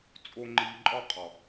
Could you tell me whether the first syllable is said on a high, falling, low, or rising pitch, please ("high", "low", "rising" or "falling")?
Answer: low